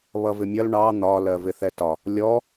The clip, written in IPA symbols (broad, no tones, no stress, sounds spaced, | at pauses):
β ʌ v ɪ mʲ ʌ l ɳ ɑ n̪ ɒ l ɜ v ɪ θ ɛ t ɒ | lʲ ɔ